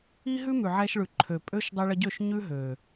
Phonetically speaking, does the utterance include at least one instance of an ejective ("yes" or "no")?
yes